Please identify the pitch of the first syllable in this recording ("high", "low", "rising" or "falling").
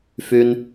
low